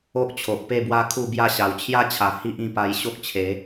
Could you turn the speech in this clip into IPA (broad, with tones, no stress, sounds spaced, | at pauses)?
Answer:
o˦ ʔ t͡ɕʰ o˨ ʔ p e˥˧ b w a˦ kʰ u˥˧ b j a˦ ɕ a˨˩ w t͡ɕʰ j a˦ t͡ɕʰ a˨˩ h i˦ ʔ ĩ˧ p a˧ j ɕ o˦ k̚ t͡ɕʰ e˨˦